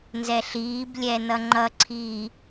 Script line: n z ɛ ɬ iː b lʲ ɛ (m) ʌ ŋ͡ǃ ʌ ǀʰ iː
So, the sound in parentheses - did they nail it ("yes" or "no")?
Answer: no